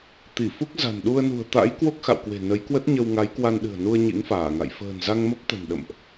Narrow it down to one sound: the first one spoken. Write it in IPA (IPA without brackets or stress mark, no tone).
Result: t̪